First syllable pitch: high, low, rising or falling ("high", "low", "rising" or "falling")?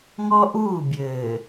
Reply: high